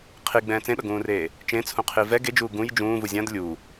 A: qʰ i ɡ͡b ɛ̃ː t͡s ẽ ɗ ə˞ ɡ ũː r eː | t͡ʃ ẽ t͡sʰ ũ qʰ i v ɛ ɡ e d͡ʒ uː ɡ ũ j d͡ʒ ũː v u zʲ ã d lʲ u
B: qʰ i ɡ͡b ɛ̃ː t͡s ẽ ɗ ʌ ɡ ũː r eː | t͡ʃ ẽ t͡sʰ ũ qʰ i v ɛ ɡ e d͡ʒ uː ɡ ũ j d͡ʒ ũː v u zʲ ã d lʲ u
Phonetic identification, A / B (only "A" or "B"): B